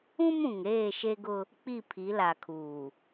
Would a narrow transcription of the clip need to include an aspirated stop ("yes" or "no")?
yes